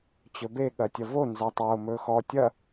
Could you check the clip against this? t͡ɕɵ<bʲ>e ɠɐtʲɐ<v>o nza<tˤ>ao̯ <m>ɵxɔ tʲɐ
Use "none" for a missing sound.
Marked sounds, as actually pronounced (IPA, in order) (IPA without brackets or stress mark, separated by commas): b, v, tˤ, m